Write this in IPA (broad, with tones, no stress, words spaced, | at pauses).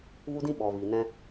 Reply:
vu˧dĩ˧ ɓɔ˨viː˨nɛ̃˧